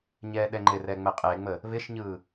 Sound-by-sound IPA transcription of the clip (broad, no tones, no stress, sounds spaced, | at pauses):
ɲ ɛː ɗ ɛ ŋ͡ǃ ɪ r ɛ ŋ͡m ə qʼ e ŋ͡m ə | β ɪ ʃ ɲ ɯ